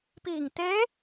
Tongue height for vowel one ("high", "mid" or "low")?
high